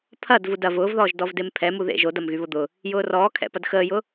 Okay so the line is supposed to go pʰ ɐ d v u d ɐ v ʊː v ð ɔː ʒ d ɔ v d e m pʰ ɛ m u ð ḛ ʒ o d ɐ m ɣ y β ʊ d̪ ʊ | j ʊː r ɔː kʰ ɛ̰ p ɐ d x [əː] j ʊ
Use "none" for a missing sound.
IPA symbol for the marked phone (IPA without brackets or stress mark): əː